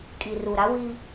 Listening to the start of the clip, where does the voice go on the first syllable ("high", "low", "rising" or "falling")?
low